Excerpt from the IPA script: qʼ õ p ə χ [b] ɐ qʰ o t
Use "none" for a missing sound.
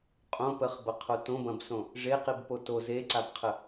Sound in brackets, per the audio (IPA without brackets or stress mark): b